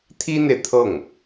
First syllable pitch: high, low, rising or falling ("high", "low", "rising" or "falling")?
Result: high